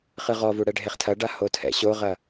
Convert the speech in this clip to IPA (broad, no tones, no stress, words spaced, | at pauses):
χɨʁɔvu ɽɛɖʱeχtʰɐɖa hotʰɛ̰ɕoʁɐ